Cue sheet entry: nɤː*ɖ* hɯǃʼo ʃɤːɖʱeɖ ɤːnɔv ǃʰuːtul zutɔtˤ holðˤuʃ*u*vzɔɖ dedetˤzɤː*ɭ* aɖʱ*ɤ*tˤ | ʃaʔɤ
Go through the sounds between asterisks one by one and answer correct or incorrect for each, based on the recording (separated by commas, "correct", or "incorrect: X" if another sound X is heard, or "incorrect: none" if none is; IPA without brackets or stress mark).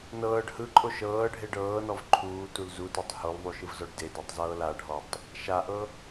correct, incorrect: ɯ, incorrect: l, incorrect: ɔ